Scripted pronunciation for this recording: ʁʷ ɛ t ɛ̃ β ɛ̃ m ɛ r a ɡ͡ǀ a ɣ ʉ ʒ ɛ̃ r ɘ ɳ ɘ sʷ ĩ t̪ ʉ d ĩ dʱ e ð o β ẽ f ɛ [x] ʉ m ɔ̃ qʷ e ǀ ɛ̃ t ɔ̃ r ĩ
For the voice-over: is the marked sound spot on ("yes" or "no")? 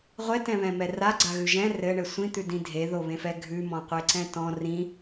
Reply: no